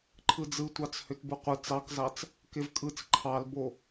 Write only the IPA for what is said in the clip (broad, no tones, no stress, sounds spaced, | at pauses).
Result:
ǃʰ ɯ d͡z ɯ tʷ ɑ t͡s h ø t b ɯ qʷ ɯ t͡s ɑ k z ɑ t͡s | k e v kʼ ɯ t͡s ǃʰ ɑ l b o